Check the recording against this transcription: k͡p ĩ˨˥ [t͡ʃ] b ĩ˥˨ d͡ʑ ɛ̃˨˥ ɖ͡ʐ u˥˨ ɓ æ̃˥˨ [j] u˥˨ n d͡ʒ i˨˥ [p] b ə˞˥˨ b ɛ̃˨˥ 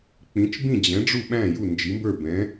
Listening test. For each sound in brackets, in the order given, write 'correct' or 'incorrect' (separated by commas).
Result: correct, correct, incorrect